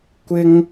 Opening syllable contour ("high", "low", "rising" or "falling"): high